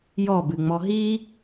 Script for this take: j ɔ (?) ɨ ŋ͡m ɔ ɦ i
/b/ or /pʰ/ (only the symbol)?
b